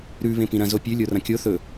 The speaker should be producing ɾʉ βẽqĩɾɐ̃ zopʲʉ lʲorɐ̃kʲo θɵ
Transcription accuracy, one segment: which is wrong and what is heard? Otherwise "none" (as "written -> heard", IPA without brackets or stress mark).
q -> p